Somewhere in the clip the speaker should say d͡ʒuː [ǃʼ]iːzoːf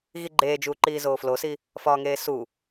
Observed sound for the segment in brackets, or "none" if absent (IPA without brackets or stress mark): ǃ